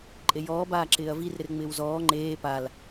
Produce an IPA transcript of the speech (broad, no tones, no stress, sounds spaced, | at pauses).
ǃʼ e j ɔː b aː ǁ ɪː ɐ̯ v i r ɾ ɪ r ŋ͡m ɪː w z ɔː ŋ͡ǃ eː p a l